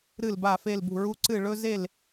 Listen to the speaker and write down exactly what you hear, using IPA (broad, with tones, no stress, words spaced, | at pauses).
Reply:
ɾɨ˧˩lba˧˩ fe˧˩lbṳ˧˩ɹu˧ ǀɨ˧˩ ɭɵ˧ ze˧˩l